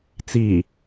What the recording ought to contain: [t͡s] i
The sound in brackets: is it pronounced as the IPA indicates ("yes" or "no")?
yes